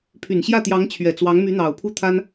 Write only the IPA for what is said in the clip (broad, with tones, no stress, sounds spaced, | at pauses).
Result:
pʰ y˨˩ n ɕ j ä˥˩ t̪ j ɑ˧˥ ŋ t͡ɕʰ ɥ ɛ˨˩ t͡s w ɑ˧˥ ŋ m y˧˥ n̪ ɑ˨˩ ʊ̯ pʰ u˥˩ t̪ʰ a˥ n